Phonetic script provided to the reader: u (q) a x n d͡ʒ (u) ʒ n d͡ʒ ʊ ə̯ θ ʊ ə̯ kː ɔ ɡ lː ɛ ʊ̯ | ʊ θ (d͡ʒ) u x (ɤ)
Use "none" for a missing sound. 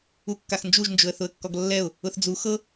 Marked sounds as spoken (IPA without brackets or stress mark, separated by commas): kː, u, d͡z, ɤ